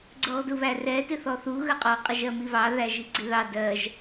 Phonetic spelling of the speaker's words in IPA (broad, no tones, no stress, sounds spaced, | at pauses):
ɡ͡ǀ ʊ ʁ d u β æ r ɛ t ɪ θ ɔ θ u ɣ ə qʼ ɒ qʼ ɪ ʒ ɜ m i β ɑ ð æ ʒ i ɡ͡ǀ ɪ ð ɑ d ɜ ʒ